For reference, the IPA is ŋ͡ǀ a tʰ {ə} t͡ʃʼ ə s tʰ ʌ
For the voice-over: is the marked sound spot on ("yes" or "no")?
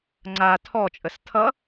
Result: no